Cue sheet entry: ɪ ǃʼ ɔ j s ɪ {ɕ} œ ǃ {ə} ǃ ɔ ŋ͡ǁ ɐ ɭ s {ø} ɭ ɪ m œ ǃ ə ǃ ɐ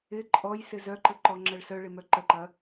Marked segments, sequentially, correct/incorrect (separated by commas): incorrect, correct, incorrect